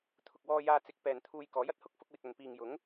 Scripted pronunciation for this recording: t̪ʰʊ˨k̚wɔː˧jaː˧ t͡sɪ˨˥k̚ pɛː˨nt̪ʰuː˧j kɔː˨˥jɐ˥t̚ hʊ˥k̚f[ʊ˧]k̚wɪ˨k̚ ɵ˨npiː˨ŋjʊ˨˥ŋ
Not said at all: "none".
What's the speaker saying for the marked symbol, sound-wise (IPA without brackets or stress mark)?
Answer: ʊ˧